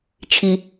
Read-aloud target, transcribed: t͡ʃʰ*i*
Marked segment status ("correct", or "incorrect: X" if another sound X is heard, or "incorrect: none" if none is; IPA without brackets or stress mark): correct